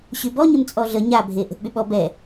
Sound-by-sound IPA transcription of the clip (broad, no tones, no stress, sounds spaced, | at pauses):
ɕ y b ɔ ɲ ə m t͡sʼ ɔ ɮ ə ɲ a bʱ e ʔ ə̤ ʔ ɓ y ɓ ɔ b ɛ